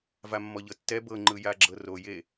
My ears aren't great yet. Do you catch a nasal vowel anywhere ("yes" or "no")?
no